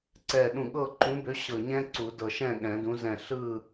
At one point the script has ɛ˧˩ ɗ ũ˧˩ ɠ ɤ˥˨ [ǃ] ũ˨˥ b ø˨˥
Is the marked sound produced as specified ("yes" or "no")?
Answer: yes